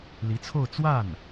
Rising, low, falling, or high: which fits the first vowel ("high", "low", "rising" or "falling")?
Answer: rising